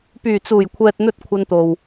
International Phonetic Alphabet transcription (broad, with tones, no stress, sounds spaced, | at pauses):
p yː˨˩ t͡s uː˨˩ j kʷʰ ɛː˨ t̚ n̪ ɵ˧ t̚ kʷʰ ɐ˧ n t̪ o˨ w